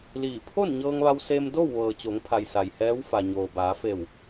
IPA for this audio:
l iː˧˩ pʰ o˥˨ n ɲ ɤː˧ ŋ ʋ a˧ w s e˧ m d o˥˨ w ʋ ɤː˩ t͡ɕ o˩˧ ŋ pʰ a˩ j s a˩ j h ɛː˧˥ w f a˩ ɲ oː˩ b aː˩˧ f e˧˩ w

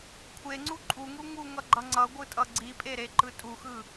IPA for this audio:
kʷʰ e ŋ͡ǀ u ǃʼ u ŋ u ŋ u ŋ ʌ ɡ͡ǃ ʌ ŋ͡ǀ ʌ ɡʷ ɯ tʼ ʌ ɡ͡ǀ i pʼ e ɾ e ǃ ɯ tʼ u x ɯ

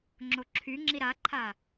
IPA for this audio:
ŋ͡ǁ o ǁʰ y ŋ͡ǁ i ɾ a ǃʰ a

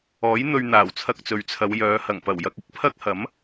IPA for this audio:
ɔː˨˥ j n̪ ɵ˧ ɥ n̪ aː˨˩ w t͡sʰ ɐ˧ k̚ t͡s ɵ˨ ɥ t͡sʰ ɐ˨˧ w j œː˨˧ h ɐ˨˩ ŋ p ɐ˨˩ w j ɐ˧ k̚ ɪ˥ k̚ pʰ ɐ˥ k̚ h ɐ˨˥ m

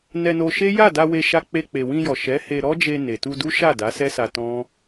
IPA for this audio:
n ɛ˧ n o˧ ʃ e˦ j a˦˨ d a˧ w e˧ ʃ a˧ k͡p e˧ k͡p e˨ w ĩ˧ j ɔ˨ ʃ ɛ˨˦ h e˧ ɾ ɔ˦ d͡ʒ e˧ n e˨ t u˧ d u˦ ʃ a˦˨ d a˨˦ s ɛ˦ s a˧ t ɔ̃˦

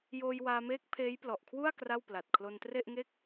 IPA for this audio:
j oː˧ j w aː˧ m eː˦˥ k̚ pʰ eː˦˥ j p l ɔ˨˩ ʔ kʰ w u˥˩ a̯ k r a˥˩ w p l a˨˩ t̚ kʰ l o˧ n t r e˥˩ ʔ ŋ e˥˩ k̚

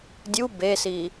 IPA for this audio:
dʲ u b e s i

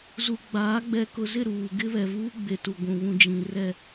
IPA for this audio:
z u˨ ɡ͡b aː˨˦ ɡ͡b ɛ˨ k ʊ˨ z ɪ˦˨ ɾ uː˨ ɡ ɪ˦ β ɛ˨ v uː˦ ɡ͡b e˨ t u˨ ɡʷ ũ˨ β ũ˨ d͡ʒ ĩ˨ r ɛ˦˨

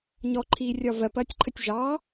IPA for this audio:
ɲ ɔ ǃʰ iː rʲ ɒ v ɜ p ɐː tʲ ǃʰ ə tʲ ʒ ɑ

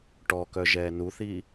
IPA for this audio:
ʈ ɔ k œ ʒ ɛː n u θ i

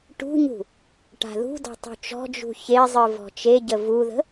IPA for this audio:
ʈ ṳ ɲ ṳ | ʈ a̤ ð ṳ d ɔ̤ tˤ ṳ t͡ʃ ɔ̤ d͡ʒ ṳ ç e zˤ ɨ v ɔ̤ t͡ʃ e ɟ ə v u ð ə̤

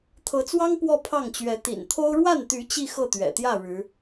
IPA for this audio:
t̪ʰ ɤ˧˥ t͡s w ɑ˥ ŋ p w ɔ˥˧ pʰ ɑ˥˩ ŋ t͡ɕ ɥ ɛ˧˥ t̪ ḭ˨˩ n t̪ʰ o˥ ʊ̯ ɻ w a˥˩ n t̪ y˧˥ t͡ɕ i˥˧ x ɤ˥˩ t̪ ɥ ɛ̰˨˩ t̪ j ä˥˩ ɻ ɻ̩˧˥

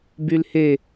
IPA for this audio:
b y l h e

